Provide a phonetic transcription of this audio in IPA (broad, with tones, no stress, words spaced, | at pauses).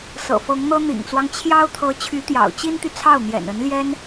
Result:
sɤ̰˨˩fɤ˧˥ŋn̪ɤ˥ n̪ḭ˨˩ŋt͡swɑ˦ŋ t͡ɕʰjɑ˥ʊ̯t̪ʰɤ˧˥ t͡ɕʰy˧˥t̪jɑ̰˨˩ʊ̯t͡ɕi˥nt̪y˨ t͡sʰɑ˥˩ʊ̯n̪jɛ̰˨˩nə˧˥nljɛ˥n